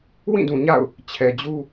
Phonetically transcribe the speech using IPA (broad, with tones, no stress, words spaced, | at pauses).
wĩ˦˨dũ˨ɲa̰˦˨ʊ̯ | t͡ɕʰɛ˨d͡ʑu˦